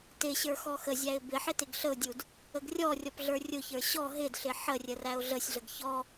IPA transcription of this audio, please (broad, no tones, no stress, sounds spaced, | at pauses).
t ɪ ɕ ə˞ x ɔ x ə zʲ æ ɪ̯ b ɪ ħ ɪ t ɪ ɡ ɬ ə ʊ̯ dʲ u d | ə ɡ rʲ ɔ rʲ ɔ p ɮ ə˞ rʲ ʊ ç ə˞ ɕ ɔ ɦ ɪ d ɬ ɪ ħ ə rʲ ə r æ ʊ̯ ɮ ə sʲ ɮ ə ɡ ç ɔ